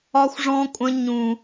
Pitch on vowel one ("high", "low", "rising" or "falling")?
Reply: high